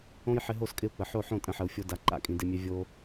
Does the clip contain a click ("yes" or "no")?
yes